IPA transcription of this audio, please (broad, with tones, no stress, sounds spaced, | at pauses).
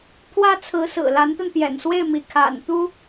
pʰ w ä˥ t͡sʰ ɹ̩˧˥ s ɹ̩˨˩ l a˧˥ n t̪ a˧ n p j ɛ̰˨˩ n s w e˥˩ ɪ̯ m i˧˥ kʰ a̰˨˩ n t̪ u˥